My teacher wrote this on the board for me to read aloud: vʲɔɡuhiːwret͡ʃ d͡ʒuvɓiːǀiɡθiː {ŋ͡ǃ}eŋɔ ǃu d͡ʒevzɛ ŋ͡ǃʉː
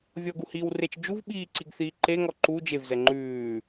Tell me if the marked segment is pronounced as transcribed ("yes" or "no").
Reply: no